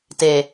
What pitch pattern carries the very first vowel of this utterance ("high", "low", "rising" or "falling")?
low